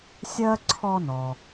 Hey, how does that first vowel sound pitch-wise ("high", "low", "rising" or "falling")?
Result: high